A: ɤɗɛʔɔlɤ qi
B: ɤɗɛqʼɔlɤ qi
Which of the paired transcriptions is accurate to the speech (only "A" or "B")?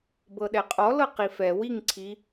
B